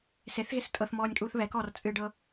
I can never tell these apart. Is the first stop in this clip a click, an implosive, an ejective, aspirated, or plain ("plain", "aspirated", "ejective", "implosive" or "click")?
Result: ejective